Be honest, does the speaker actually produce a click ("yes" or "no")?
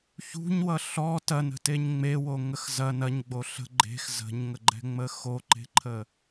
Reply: yes